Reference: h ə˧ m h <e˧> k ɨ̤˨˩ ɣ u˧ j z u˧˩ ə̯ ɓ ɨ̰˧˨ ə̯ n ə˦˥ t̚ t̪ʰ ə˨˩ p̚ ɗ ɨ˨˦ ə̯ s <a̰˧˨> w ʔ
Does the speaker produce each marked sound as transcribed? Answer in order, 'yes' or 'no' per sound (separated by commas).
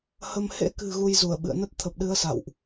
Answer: no, yes